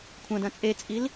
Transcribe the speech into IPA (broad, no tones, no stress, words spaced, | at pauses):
kʷʰɐ̃dɐ̃ t͡sʼet͡sʼil